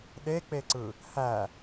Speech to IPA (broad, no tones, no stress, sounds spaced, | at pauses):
ɗ e k͡p e ǀ ɯ | h æ